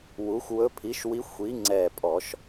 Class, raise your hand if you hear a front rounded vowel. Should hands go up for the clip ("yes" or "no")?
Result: no